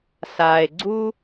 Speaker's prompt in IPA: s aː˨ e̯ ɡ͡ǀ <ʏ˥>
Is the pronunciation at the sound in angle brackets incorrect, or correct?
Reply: incorrect